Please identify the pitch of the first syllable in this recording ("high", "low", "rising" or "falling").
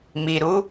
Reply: low